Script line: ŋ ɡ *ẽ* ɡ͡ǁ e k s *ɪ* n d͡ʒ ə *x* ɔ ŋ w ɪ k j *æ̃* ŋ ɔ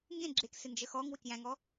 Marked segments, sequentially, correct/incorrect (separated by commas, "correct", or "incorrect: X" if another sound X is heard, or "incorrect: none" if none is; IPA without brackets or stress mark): correct, correct, correct, correct